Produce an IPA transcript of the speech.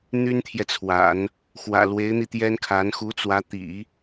n̪ y˥ n t̪ʰ j ɛ˨ t͡sʰ w a̰˨˩˦ n | x w ä̰˨˩ l w e˧˥ ɪ̯ n̪ i˧ t̪ j ɛ˥ n kʰ a˧˥ n x u˧˥ t͡s w ä˧˥ t̪ ḭ˨˩˦

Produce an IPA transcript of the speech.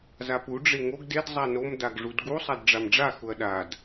z a p u ɖ͡ʐ e ŋ o ɡ d e d zˤ a n o m d a ɡ ʐ u d ɡ u sˤ a d ɖ͡ʐ a m ɖ͡ʐ a x ʊ ɐ̯ ɗ a d

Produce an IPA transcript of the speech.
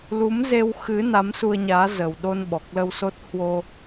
l u˨˦ m z e˧ w x ɨ˨˦ n a˨˦ m s u˧ ə̯ ɲ aː˨˦ z ə˨˩ w ɗ o˧ n ɓ ɔ˨˩ k̚ l ə˧ w s o˦˥ t̚ h w o˧

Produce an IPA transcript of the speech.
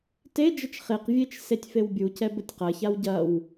t e d͡ʒ ə t͡ʃ χ e q vʲ e t͡ʃ s e tʲ f e w bʲ u c ɛ b ə tʲ q ɐ ç a w ɟ ɐ w

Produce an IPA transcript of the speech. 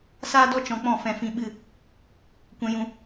s aː˦ d ɔ˦ t͡ʃ ɔ̃˧ k͡p ɔ̃˦˨ f ɛ̃˨ f ĩ˧ ɓ ɨ˦˨ | kʷ ɛ̃˧ j ũ˧

